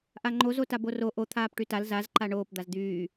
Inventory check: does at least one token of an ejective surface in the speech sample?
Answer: no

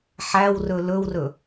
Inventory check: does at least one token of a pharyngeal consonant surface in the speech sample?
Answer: yes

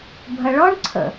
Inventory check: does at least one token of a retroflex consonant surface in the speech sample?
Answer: yes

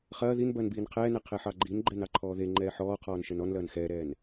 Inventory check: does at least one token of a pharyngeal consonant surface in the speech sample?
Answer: yes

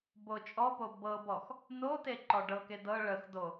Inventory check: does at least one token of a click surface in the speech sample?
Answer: yes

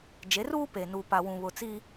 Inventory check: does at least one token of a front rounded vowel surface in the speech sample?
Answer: no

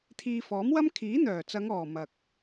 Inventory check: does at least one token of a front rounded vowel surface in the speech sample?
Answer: yes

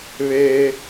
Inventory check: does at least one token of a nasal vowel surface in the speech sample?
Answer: no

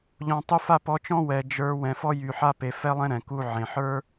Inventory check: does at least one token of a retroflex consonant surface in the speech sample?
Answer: no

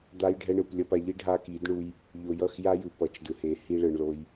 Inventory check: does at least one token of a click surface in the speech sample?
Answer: no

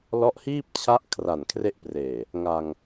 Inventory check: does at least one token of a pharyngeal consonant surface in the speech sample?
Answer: no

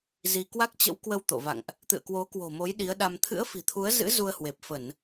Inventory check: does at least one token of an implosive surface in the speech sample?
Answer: yes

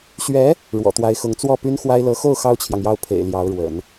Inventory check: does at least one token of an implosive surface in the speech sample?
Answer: no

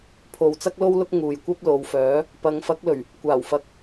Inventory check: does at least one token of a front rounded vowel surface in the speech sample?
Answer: yes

